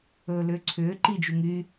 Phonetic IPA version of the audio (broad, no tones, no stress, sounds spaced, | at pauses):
ɵː l ʏː ǀʰ ʏː ǃ i d͡ʒ u ŋ y